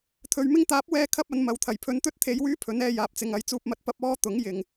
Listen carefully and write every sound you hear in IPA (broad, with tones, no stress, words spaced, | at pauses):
t̪ʰɵ˨˧ɥmɪ˥ŋ t̪aː˨˥p̚wɛː˧ kʰɐ˥p̚ɐ˨˧nmɐ˨˧wt̪ʰɐ˨˩j pʰɵ˨˧nt̪ɵ˥t̚t̪ʰe˨˧jwyː˥ pʰɵ˨˥nɛː˧ jaː˨p̚t͡sɪ˨ŋ ɐ˨˧jt͡suː˧p̚mɐ˧t̚ pɐ˥p̚ ɔː˥t̪ʊ˨˥ŋjɪ˨ŋ